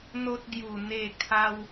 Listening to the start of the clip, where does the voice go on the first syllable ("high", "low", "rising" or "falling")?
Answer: high